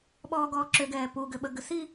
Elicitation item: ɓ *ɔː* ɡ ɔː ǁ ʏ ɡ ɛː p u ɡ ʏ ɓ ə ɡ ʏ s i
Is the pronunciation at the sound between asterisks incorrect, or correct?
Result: correct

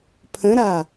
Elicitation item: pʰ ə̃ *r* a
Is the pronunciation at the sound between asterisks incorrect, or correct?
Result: incorrect: ɾ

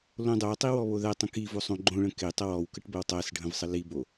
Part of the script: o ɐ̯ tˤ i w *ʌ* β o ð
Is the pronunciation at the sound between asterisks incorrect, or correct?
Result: incorrect: ɔ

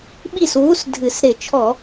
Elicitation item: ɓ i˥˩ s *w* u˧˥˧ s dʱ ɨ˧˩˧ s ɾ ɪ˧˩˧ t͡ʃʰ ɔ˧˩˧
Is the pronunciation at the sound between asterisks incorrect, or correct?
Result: correct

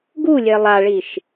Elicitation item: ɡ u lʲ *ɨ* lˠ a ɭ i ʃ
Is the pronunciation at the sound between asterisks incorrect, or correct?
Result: incorrect: e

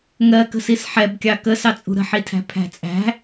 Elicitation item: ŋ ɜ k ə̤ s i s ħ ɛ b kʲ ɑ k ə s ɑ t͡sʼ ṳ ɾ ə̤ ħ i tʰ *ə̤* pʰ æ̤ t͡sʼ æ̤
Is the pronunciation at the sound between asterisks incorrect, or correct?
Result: incorrect: æ̤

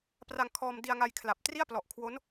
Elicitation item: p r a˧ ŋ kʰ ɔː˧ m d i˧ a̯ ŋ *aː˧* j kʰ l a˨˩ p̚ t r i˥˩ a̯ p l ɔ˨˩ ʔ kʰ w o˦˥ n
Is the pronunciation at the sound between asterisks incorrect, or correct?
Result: incorrect: a˧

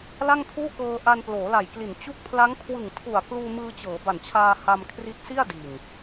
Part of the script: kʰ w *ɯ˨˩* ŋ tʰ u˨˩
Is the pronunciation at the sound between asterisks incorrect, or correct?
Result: correct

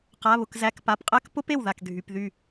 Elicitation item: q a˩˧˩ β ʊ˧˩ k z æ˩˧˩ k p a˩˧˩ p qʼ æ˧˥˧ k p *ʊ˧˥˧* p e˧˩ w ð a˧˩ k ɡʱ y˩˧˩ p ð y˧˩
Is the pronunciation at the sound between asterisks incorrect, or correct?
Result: correct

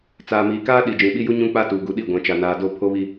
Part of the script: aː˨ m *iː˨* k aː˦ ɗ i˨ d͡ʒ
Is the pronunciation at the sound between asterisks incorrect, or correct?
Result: correct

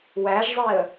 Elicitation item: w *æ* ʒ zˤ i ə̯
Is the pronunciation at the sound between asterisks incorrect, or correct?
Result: correct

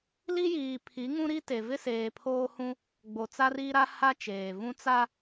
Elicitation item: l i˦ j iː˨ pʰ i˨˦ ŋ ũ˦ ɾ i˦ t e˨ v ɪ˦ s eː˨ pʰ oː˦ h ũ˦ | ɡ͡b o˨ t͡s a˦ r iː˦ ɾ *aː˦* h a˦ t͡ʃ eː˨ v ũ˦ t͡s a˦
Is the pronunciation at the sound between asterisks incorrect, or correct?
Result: incorrect: a˦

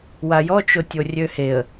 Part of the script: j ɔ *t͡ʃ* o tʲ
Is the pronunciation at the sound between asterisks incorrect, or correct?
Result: correct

